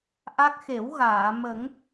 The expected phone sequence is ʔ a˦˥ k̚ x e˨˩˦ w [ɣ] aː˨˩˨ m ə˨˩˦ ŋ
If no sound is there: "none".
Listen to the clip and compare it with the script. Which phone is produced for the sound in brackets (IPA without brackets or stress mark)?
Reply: ɣ